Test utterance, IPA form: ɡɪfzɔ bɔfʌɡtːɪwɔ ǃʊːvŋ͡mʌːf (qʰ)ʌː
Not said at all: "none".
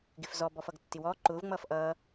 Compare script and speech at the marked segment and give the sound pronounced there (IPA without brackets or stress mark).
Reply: ʔ